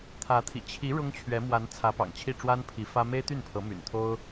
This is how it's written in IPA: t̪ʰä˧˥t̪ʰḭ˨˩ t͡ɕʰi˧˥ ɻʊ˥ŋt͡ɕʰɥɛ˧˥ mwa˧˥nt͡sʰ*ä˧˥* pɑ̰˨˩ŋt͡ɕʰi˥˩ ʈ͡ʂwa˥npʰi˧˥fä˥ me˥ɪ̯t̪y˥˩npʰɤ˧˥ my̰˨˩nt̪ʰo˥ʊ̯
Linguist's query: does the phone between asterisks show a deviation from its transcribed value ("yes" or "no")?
no